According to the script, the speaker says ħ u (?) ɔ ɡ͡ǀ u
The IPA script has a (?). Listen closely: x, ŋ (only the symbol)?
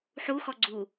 x